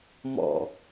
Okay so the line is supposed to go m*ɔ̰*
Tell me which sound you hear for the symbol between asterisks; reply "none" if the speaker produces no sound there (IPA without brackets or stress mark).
ɔ̰